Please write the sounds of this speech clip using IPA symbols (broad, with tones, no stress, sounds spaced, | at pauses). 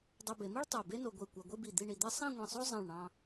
dˤ e˧ b e˩˧ m i˥ ɭ tˤ o˧˩ b e˥ n o˧ ɡʷ i˧˩ kʷ a˧ ɡʷ i˥˧ b i˧˩ d̪ i˥˧ ɳ i˧ d̪ e˥ sˤ ĩ˥˧ ŋʷ ĩ˧˩ sˤ o˥ zˤ ĩ˧˩ ɭ ɳ ɑ̃˧